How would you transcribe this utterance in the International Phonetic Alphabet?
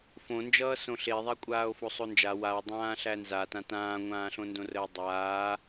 fõnd͡ʒʌː sõɬeðˤæ kʷʼaːo̯fosˤond͡ʒa wawdˤãː ɬænzatã tãːŋʷãːɬõndõ rəːdˤaː

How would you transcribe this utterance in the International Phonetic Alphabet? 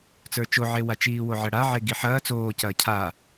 t͡sə˞t͡ʃoʕewa t͡ʃiːwoʕɜɽa ʕeɡiħɐː t͡soːcɐː cʰa

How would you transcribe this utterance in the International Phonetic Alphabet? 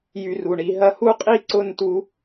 jy˧ru˨ɳi˨˦ ɦɐ˦ hu˦qʼi˦ǀʊ˦˨ntu˧

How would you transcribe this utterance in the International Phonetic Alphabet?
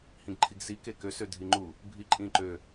hĩɡǃʰiɡsi kekø sødʱiŋ͡ǃu | bʱiǃʼĩǃø

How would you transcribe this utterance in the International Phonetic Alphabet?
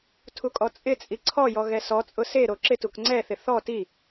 tʰukʼɔt͡sʼɪt͡sʼi ǀʰɔjɔ ɣɛsɔt͡sʼʊ seɾo ǁɪtuk ŋ͡ǀɛθɪ θɔ ti

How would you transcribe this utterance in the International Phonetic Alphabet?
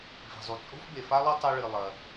vi̤˩zˤu˩ t͡sʼo̤˥fbe˩fa˥lˠɐ˥ tˤo˥ɭɨ˩ lˠɐ˩

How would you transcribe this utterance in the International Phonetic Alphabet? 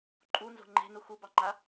ǃʼunzo̤ ŋ͡ǃe̤nu xubɑŋ͡ǃa

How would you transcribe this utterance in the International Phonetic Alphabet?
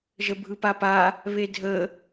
ʒəbʱɯpapa | βedʱə

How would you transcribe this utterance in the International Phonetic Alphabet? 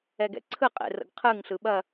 ɛɡɛ̰ǀʰɯqʼḛ rə̰ɡqʰɯŋɬɯ ɓɐ

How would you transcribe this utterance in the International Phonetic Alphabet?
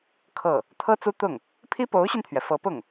kʰɤ˥˩ | t̪ʰɤ˥t͡su˥t̪ʊ˥˩ŋ | pʰi˥po˧˥ʊ̯ɕy˧nt̪ʰɥɛ˩ fɤ˧˥pʊ˥˩ŋ

